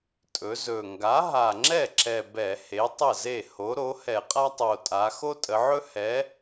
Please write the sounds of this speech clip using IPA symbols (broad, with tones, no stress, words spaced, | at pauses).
tʼɵ˩˧zɵ˨˩ ŋɡa˩˥ɦa˨˩ŋ͡ǁɛ˥˩ǁɛ˨˩ bɛ˧˩˧he˩˥tˤə˥˩ze˥˩ ho˩˥ɾo˩˥ hɛ˧˩˧qʼa˥tˤo˨˩tʼa˩˧ xo˥tʼə˩˧ʕɵ˥ hɛ˩˥